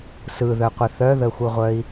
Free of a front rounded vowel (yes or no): no